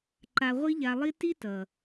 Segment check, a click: present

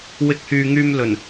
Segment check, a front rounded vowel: present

